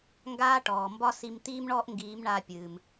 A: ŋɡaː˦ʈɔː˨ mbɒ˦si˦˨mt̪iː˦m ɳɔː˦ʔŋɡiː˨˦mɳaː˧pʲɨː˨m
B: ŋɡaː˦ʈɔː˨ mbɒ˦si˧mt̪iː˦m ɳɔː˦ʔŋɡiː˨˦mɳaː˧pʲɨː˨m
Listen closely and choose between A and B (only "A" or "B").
B